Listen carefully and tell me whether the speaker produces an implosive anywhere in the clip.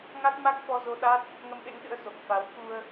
yes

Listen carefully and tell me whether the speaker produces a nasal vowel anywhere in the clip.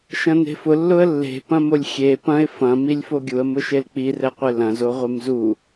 yes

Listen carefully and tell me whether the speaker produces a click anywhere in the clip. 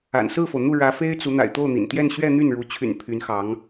no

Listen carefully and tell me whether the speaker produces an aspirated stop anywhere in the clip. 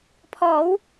yes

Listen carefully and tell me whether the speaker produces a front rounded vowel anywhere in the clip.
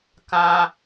no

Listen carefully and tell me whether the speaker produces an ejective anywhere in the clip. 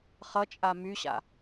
yes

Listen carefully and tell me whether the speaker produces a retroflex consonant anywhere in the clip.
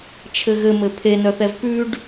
yes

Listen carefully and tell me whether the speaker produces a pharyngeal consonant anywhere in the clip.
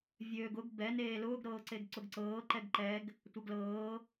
no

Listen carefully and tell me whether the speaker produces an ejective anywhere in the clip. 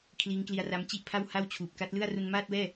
no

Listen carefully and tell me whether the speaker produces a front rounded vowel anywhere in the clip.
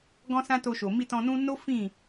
no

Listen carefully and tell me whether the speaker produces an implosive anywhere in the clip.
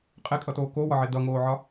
no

